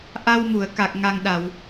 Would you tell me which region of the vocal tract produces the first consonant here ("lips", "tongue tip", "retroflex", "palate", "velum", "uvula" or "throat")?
throat